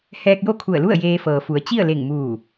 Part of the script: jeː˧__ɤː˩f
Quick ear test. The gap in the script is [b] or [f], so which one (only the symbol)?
f